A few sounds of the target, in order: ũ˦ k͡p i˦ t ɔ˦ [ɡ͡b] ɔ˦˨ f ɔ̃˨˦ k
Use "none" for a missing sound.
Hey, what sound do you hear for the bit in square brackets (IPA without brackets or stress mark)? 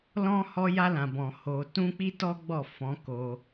ɡ͡b